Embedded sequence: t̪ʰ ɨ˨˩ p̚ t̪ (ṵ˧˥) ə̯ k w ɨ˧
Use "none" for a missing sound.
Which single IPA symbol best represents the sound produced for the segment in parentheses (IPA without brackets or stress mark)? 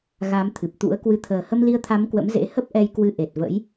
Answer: ṵ˧˥